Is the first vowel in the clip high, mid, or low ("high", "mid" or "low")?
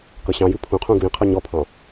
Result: mid